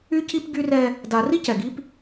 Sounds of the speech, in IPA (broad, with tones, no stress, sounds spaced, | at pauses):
y˦ c i˦ p ɡ y˦ r ɛ˦ | d a˨ r i˦ c ɛ˨ ɡ i˦ p